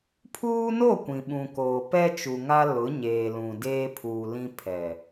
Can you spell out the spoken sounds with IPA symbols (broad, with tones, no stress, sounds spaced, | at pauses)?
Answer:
pʰ uː˦ n o˦˨ kʷ ĩ˨ ɓ ũ˨ k oː˨ p ɛ˦ t͡ʃ u˨ ŋ a˦ l ʊ˨˦ ɲ eː˨ l ũ˨ d eː˦ pʰ uː˨ l ĩ˦ pʰ ɛ˨